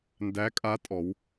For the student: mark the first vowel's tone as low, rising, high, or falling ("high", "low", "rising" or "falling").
rising